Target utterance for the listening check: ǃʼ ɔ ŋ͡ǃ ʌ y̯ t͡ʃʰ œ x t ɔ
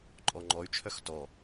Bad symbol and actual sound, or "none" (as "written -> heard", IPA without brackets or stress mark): ʌ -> ɔ